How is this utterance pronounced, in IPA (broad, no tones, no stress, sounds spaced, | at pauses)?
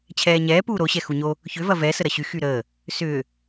t͡ɕʰ ɛː ɲ ɛː p uː ɾ o ɕ ɛ x u ɲ o | ç ʏ v ɐ v ɛ s ə ɾ ɐ ɕ y x y ɾ əː | s ʏː